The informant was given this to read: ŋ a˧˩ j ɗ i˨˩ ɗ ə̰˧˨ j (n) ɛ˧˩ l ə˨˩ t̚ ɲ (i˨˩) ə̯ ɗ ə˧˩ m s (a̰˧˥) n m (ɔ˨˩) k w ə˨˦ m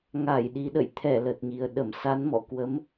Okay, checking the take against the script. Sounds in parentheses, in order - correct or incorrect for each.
incorrect, correct, incorrect, incorrect

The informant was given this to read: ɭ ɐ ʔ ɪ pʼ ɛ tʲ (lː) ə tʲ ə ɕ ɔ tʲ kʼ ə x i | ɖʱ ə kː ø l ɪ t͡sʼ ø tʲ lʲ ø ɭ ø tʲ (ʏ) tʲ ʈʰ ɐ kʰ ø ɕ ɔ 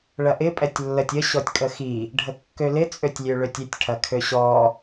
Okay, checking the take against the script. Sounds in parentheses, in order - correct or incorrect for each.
correct, correct

